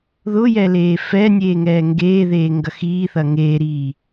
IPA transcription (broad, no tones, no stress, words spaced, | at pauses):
ðʊjɛ leːfɛnʲeː ŋɛːŋɡeːðeː ŋɡɐxiːθɐ ŋeːɾiː